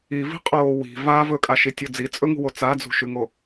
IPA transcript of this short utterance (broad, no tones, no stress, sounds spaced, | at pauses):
i v i̤ qʼ oː w i̤ v a v ɵ kʼ a ʃ i tʲ o d͡z i t͡sʼ ɵ ŋ ṳ w o t͡s a d͡z ṳ ʃ ʉ ŋ o